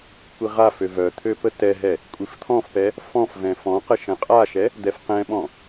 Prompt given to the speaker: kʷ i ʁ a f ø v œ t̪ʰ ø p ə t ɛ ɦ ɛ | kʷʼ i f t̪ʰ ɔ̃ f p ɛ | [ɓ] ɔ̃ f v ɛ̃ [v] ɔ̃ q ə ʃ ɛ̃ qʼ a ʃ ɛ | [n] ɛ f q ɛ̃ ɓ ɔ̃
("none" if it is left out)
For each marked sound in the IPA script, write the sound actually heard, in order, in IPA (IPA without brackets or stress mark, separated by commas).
f, f, d̪